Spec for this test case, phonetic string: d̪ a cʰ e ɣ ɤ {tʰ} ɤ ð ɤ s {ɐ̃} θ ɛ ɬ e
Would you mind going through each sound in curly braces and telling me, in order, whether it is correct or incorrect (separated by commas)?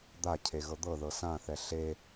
incorrect, incorrect